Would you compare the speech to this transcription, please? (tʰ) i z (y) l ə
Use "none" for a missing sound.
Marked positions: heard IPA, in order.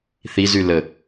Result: θ, y

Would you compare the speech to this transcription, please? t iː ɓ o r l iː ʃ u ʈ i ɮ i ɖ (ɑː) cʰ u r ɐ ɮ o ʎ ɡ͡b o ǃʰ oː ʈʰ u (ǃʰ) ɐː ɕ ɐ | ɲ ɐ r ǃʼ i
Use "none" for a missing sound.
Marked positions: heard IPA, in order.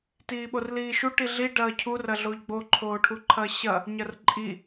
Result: ɐː, ǃʰ

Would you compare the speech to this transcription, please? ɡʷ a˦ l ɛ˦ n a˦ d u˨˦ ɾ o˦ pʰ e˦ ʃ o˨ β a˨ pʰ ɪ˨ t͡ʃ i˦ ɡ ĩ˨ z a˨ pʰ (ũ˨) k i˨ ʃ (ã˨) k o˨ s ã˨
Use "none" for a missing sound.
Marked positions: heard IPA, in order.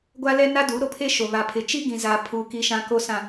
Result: u˨, ã˨

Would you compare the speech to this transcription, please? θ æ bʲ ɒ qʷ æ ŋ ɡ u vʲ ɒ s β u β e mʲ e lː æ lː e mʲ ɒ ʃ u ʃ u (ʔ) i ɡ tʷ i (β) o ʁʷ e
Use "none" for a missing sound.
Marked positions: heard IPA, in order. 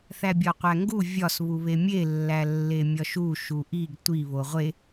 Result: ʔ, β

